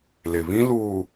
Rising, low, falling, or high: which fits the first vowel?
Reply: low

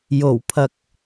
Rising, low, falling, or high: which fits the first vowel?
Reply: low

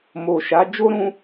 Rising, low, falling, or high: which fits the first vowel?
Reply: low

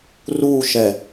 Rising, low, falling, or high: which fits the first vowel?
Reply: falling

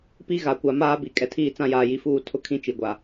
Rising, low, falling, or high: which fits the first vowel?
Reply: high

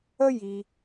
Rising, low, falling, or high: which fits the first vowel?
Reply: high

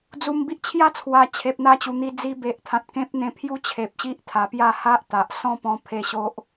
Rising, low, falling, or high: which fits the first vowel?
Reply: low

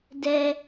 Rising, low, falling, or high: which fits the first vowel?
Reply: high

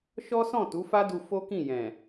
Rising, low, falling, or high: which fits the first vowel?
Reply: high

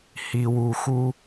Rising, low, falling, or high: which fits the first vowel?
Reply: low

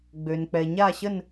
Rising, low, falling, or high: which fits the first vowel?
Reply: low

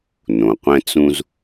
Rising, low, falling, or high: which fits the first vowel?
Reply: low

